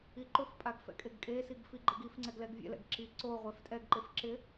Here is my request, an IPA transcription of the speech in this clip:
i ǃ ʊ f pʼ a ɡ f ɛ̰ kʼ e ɡ kʼ e s i ɡ f i ɡ͡ǃ e ɡ i f ŋ͡ǀ ɛ ɡ l ɛ ɡ vʲ ɛ̰ l ɛ̰ ɡ ǁ i ǀ o ʁʷ ɛ f tʼ ɛ ɡ ǃ e f ǁ ɪ

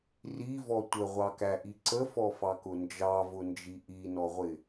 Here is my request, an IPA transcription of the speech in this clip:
r i v ɔ tʷ ə ʁʷ ɑ k æ ʔ i ǀ ə f ɔ f ɑ k ʊ n d͡ʒ ɑ v ʊ n d͡ʒ i ʔ i n ɔ ʁʷ ɪ

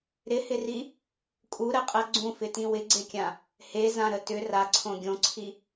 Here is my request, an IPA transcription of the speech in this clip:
ɾ ɪ h ɪ r i | kʼ u ɾ ɜ qʼ ɜ ɡ͡ǀ ũ f ɪ t ĩ w ɪ ɡ͡ǀ e kʲ ã | h e z ã ɾ ə t ʏ r a ǀʰ õ ɡʲ õ ǀʰ i

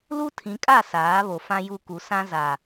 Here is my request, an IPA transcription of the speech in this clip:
l u˦ tʰ ĩ˨˦ kʼ a˦˨ s aː˨˦ β o˨ f ã˦ j u˦˨ k u˨ s ã˦ z a˨

